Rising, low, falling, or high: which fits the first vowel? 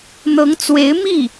rising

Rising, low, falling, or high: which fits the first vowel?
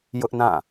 high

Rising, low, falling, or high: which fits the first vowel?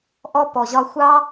high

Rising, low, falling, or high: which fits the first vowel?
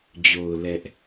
low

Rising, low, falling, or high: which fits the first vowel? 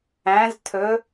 rising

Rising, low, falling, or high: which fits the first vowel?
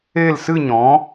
falling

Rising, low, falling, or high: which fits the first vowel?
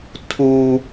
high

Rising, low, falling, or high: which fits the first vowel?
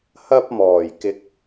high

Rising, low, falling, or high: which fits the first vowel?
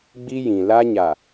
high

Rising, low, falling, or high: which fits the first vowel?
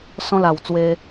high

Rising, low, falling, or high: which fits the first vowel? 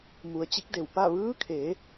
low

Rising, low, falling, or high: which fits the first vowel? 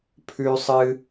high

